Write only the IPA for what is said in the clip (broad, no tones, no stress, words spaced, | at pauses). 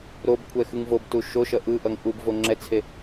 ɾobkʷʰɛ xɯŋvobtu ʃoʃʌ ʔɯʔʌŋ ʔub voŋ͡ǁɛt͡sʰe